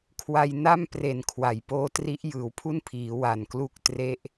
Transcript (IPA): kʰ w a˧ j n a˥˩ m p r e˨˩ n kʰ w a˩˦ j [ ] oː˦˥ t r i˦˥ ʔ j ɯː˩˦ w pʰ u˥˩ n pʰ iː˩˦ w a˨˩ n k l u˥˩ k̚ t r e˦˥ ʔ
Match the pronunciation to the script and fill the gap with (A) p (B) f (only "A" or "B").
A